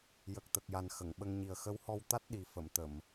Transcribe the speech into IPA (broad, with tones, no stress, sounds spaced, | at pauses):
j ə˨˩ k̚ t̪ ə˨˩ k̚ j a˨˩ n x ə˨˩˨ ŋ ɓ ə˧ ŋ ɲ i˨˩ ə̯ x ə˧˥ w h ɔ˧ w t̪ a˦˥ t̚ ɗ i˨˩ f ə˨˩˨ m t̪ ə˨˩˨ m